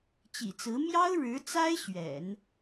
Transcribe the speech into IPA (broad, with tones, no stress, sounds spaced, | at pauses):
t͡ɕ ḭ˨˩ t͡s ɹ̩˧˥ m j ɑ˥ ʊ̯ ɻ ɻ̩˧˥ t͡s a˥ ɪ̯ ɕ ɥ ɛ̰˨˩˦ n